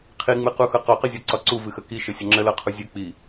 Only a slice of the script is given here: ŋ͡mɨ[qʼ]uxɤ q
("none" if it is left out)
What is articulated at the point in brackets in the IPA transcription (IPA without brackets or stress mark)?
q